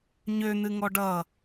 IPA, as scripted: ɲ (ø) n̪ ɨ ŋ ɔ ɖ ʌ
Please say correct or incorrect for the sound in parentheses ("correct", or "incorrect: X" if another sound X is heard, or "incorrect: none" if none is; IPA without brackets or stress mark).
correct